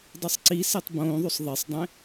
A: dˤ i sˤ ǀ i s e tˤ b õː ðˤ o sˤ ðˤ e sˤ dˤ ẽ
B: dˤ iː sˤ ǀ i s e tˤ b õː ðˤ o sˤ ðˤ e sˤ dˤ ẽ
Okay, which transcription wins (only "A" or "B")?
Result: A